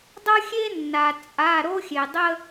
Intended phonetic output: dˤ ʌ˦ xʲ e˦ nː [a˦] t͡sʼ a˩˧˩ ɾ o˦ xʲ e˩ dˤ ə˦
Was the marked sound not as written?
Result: yes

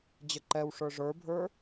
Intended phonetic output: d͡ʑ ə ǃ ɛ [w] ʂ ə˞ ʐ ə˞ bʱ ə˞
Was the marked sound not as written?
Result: no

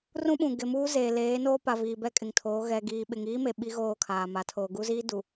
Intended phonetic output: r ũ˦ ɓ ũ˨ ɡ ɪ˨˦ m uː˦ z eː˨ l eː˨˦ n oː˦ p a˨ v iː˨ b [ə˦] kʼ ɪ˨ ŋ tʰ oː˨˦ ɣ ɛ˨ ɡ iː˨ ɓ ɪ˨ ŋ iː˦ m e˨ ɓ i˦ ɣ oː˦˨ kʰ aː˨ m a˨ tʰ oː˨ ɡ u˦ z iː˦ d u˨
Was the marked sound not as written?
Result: yes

